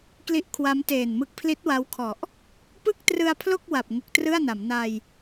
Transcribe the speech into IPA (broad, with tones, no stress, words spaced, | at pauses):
kli˦˥ʔkʰwa˦˥mteː˨˩nmɯ˦˥k̚ pʰli˦˥t̚wa˦˥wkʰɔ˨˩ʔ | pɯ˥˩k̚trɯ˧a̯pʰlo˥˩k̚ wa˨˩p̚ ŋu˨˩k̚trɯ˥˩a̯na˩˦m na˧j